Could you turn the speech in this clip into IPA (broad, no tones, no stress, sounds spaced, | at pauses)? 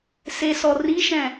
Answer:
s e s ɔ r i ʃ ɛ̃